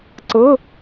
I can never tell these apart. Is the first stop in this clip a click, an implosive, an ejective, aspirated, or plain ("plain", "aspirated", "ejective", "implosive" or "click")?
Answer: click